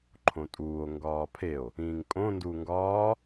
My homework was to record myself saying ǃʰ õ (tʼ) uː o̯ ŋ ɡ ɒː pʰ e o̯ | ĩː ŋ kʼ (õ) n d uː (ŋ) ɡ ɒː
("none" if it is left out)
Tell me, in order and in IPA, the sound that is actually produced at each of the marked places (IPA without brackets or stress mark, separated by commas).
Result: tʼ, õ, ŋ